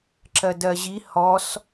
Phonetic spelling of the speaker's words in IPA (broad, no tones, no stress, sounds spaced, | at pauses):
ǁ ɜ d ɜ ʑ i h ɔ s